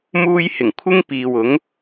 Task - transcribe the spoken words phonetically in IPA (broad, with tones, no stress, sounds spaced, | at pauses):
m uː˧ j h ɪ˨˩ ŋ kʷʰ ɪ˥ ŋ p iː˨ w ʊ˨˥ ŋ